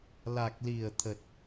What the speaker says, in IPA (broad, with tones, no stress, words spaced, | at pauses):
la˨˩k̚li˨˩ə̯t̪ʰə˨˩t̚